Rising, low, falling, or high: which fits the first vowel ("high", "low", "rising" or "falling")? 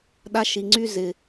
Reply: high